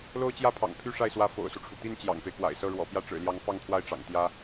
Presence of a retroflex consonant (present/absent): present